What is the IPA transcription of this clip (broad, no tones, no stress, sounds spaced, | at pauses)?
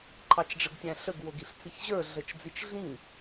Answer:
ǃʰ ɑ t͡ʃ ɖ͡ʐ ə ɡ tʲ æ̃ ɬ ə ɡ w o ɡ i ɬ t͡s i ç ʑ ə˞ ɮ ə t͡ʃ d͡z i t͡ʃ ɮ ĩ